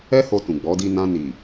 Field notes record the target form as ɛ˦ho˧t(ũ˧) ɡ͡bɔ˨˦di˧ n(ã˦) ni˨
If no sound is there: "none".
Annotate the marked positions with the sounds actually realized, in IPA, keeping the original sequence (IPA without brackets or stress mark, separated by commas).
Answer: ũ˨, ã˧